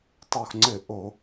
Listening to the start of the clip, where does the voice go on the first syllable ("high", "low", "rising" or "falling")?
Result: low